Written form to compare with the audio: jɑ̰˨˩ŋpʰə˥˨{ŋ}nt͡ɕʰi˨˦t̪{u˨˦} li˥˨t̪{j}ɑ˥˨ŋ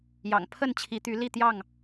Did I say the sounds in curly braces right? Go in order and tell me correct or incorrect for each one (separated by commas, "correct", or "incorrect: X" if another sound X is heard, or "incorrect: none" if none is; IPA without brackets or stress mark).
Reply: incorrect: none, incorrect: y˨˦, correct